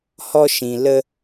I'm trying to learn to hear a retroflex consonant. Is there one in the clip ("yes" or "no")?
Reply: no